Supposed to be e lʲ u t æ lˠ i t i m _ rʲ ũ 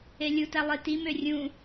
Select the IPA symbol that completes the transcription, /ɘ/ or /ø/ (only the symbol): ø